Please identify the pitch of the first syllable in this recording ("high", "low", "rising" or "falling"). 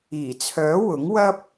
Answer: low